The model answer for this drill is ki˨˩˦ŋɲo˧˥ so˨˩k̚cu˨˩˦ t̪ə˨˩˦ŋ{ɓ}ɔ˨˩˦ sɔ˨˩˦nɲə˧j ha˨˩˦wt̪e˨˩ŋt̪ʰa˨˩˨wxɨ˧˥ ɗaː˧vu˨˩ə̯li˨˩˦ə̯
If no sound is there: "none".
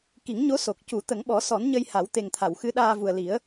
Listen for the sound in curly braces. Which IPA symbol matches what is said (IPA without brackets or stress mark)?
ɓ